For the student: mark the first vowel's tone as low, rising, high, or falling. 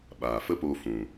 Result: low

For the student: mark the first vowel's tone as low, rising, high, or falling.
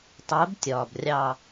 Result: rising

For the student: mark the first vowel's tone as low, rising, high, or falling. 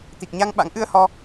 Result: low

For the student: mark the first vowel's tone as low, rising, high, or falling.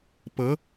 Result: rising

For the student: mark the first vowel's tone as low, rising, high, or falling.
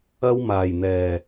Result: high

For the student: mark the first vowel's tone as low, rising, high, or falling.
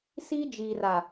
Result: high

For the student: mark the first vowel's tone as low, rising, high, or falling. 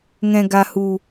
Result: low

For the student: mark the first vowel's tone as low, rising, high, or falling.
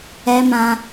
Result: low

